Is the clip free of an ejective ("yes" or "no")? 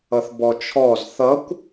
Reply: yes